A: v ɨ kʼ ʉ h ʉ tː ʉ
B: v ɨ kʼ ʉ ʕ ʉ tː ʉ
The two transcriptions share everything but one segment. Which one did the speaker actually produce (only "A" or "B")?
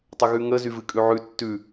B